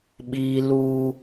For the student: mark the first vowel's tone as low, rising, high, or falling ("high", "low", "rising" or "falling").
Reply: high